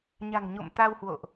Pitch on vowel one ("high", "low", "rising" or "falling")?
low